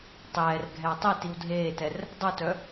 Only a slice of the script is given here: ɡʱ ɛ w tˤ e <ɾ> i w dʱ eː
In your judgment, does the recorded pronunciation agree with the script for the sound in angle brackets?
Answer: no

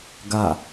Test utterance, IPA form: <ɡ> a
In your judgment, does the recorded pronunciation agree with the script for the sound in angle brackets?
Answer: yes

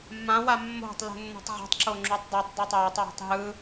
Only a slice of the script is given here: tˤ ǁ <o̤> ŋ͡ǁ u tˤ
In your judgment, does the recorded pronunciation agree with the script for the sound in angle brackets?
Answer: no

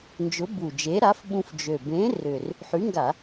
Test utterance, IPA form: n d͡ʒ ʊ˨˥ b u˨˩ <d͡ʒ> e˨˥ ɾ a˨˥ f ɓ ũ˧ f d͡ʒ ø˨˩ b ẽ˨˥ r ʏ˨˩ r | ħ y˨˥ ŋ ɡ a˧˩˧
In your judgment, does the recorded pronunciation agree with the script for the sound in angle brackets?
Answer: yes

